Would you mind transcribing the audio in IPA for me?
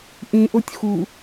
ʔ ĩ ʔ o tʲ x u

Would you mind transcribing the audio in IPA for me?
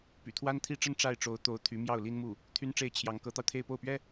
p y̰˨˩ t̪ʰ w a˥ n t̪ʰ i˥ ʈ͡ʂ ə˥ n ʈ͡ʂ a˥˩ ɪ̯ ʈ͡ʂ o˧˥ ʊ̯ t̪ o˧˥ ʊ̯ t̪ʰ y˧˥ m j ɑ˥˩ ʊ̯ l i˥ n m u˥˩ | t̪ʰ y˥ n ʈ͡ʂ e˥˩ ɪ̯ t͡ɕʰ j ɑ˧˥ ŋ k ɤ˧˥ t̪ ɑ˧ ʊ̯ t̪ʰ e˥˧ ɪ̯ p o˥˩ ʊ̯ p ɥ ɛ˥

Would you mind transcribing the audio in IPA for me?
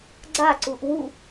ɡ͡ǀ a ǀ u ʔ w u

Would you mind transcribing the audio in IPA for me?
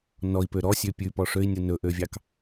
n ɔ i̯ p ø ɾ ɔ sʲ ø pʲ ʉ p ɔ ʂ ø i̯ nʲ u n ɵ ʔ ø vʲ ɑ k

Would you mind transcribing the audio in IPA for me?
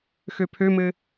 x ø pʰ ø m ɘ

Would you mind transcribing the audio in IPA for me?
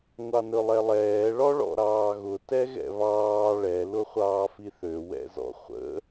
ŋʷ ɑ n ɵ lˠ ɛ lˠ ɛː ɭ ɔ ɭ ɔ̰ ɾ ɑː ɣ ʊ t ɛ ɣ ɛ̰ β ɑː ɭ ɛ l ʊ χʷ ɑː f i θ ø w ɛ̰ z ɔ̰ χʷ ə̰

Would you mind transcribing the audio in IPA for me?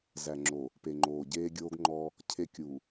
z æ˨ ŋ͡ǁ o˨ | p e˨ ŋ͡ǃ oː˨ ɟ eː˦ ɡʲ oː˦ ɡ ŋ͡ǃ ɔ˦ | cʰ e˦ kʲ u˨

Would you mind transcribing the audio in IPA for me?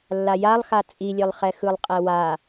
lː a j a lˠ x a t͡sʼ i lʲ e lˠ χ ɛ x ɯ lˠ qʼ ɛ w a

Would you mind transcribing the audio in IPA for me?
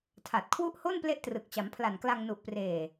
tʰ a˨˩ t̚ kʰ w u˦˥ ʔ h o˥˩ n p l e˥˩ ʔ t r ɯ˨˩ k̚ t͡ɕ a˩˦ m pʰ l a˨˩ n k l a˧ ŋ n u˨˩ ʔ p r eː˨˩

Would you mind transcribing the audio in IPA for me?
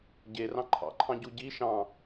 ɟ e r ɑ̃ ǃʰ ɑ̰ ǃʰ ɑ̃ ɟ u ɟ i ʃ ɑ̃

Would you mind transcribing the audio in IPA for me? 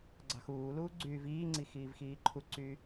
ɡ͡ǀ ɑ̤ x uː l uː ɡ͡ǀ yː v iː ŋ͡ǀ i x iː v x iː ǃʰ u ǀ y

